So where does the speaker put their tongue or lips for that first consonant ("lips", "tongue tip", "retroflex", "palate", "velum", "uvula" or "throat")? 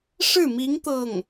retroflex